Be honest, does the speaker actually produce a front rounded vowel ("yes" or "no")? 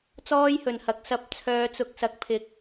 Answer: yes